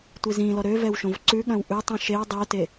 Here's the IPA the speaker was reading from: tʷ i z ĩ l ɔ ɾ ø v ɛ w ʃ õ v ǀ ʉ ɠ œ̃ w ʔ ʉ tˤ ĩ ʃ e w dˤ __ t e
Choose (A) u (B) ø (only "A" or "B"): B